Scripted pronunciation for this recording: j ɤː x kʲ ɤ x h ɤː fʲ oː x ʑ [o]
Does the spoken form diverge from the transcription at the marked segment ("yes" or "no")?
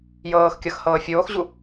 yes